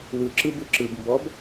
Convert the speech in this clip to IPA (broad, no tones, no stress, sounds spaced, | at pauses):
w ɯ ǁ ɯ b ɯ ǁ ɯ b m b ɔ b